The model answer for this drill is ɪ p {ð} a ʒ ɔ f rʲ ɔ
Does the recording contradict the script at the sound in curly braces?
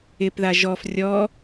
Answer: no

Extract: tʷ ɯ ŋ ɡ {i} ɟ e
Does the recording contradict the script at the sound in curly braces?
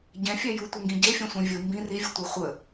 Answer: yes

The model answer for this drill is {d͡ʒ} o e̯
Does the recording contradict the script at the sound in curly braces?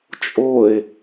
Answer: yes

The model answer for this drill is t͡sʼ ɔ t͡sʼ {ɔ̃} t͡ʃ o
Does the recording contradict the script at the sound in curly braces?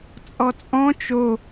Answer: no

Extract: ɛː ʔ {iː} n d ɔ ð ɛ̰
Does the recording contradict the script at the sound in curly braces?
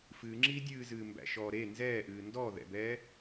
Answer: yes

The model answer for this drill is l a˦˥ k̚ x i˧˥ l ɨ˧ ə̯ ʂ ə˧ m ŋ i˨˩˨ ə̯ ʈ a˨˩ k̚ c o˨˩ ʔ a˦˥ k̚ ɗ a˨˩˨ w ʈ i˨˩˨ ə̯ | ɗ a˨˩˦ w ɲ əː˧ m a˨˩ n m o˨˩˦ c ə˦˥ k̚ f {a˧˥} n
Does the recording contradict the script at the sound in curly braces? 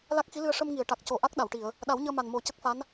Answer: no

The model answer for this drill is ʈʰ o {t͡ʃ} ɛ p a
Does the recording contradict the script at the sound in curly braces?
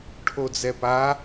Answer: yes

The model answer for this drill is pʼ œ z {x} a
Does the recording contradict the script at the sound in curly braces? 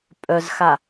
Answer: no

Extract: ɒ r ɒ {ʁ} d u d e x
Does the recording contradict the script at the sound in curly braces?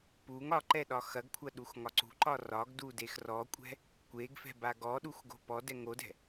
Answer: yes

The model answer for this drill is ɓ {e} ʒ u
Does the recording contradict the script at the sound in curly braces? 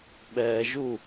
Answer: yes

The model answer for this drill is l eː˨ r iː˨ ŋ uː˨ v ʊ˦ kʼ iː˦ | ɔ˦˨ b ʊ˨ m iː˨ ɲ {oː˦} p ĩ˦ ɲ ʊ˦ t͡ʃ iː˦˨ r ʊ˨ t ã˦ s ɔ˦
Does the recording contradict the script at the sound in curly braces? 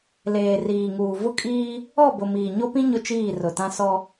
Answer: yes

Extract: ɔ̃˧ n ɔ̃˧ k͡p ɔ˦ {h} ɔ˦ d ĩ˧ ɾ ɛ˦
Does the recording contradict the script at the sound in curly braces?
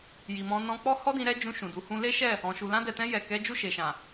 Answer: no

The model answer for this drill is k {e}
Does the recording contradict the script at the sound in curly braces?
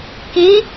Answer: yes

